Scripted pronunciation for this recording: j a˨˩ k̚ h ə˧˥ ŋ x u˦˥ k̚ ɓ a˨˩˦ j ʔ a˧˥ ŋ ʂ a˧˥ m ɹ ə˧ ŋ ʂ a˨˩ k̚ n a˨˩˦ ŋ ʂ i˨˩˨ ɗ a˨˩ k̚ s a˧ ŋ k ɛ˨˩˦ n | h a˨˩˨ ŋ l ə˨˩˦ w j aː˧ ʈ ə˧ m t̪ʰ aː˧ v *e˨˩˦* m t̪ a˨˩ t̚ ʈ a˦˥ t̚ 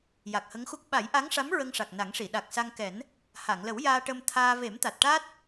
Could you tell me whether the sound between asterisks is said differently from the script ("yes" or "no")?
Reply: no